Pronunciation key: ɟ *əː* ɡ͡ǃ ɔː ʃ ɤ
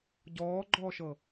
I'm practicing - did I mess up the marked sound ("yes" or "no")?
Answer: yes